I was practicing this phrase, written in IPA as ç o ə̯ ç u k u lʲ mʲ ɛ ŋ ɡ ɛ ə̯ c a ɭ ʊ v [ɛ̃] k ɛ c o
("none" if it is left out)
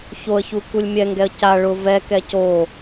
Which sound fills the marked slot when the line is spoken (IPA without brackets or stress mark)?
ɛ